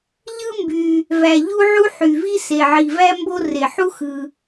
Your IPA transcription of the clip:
ʎ ɯ˥ m b y˩ | v æ˩ ʎ u˥ ʕ u˥ ħ y˩ v i˥ s e˩ ʕ i˩ v æ˥ m b o˥ r e˩ ħ u˥ x ɯ˩

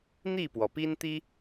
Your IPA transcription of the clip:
n̪ i˥˨ p w ɔ˩ p i˦ n t̪ i˦

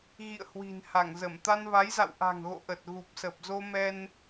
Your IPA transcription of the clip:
ɣ ḭ˧˨ ə̯ h w i̤˨˩ n h a˧˩ ŋ z ə˧˩ m t̪ a˧ n v a˨˦ j z a̰˧˨ w ʔ a̤˨˩ ŋ ɣ o̰˧˨ ʔ ə˨˩ t̚ ɣ u˨˩ p̚ s ə˨˩ p̚ z o˧ m ɛ˧ n

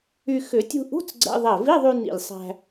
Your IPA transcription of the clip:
y˧ x ʏ˨˩˦ tʲ ṳ˧ ʔ ṳ˧˥˧ t͡s ɡ͡ǀ ɛ̰˧˥˧ ðˤ ɛ˧˩ v i˧˥˧ ðˤ y˧ n ḭ˧˩ lʲ sˤ æ̤˧

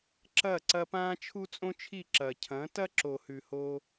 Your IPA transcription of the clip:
ǁ ɐ˦˨ ǀ ɐ˧ p ãː˦ t͡ʃʰ u˦ t͡sʼ õ˦ t͡ʃʰ i˦˨ ǁ ɐ˨ cʰ ɐ̃˨˦ t ɐ˦ ǁ o˨ h ʉ˨ h oː˧

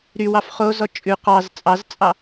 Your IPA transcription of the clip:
ɾ y w ɑ f χ o z ɔ t͡ʃʼ ʉ q ɑ z t͡sʼ ɑ z t͡sʼ ɑ

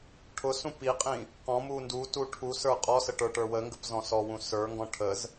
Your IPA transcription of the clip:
ʈʰ ʊ s ũ p i qʼ ĩ | q ɔ̃ m u n d u t u ʈʰ u s ə˞ qʼ ɔ s ə ʈ ə˞ ʈ ə˞ w ə ŋ ɡ ə p z ɔ̃ s ɔ w ũ s ə˞ ŋ ɡ ɔ̃ ʈʰ ə z

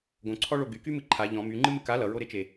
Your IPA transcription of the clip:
ɡ õ ǀʰ ɔ ɭ o ɡ y k y m ɨ ǃʰ a ʎ ɔ̃ m y ŋ͡ǃ ɨ m ɨ k a l ʌ ɹ o ɾ e t͡ʃ e

